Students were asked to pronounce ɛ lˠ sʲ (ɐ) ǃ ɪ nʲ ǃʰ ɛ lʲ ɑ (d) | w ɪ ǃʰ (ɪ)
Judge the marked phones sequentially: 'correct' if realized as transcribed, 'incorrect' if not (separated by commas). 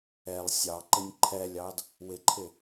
incorrect, correct, correct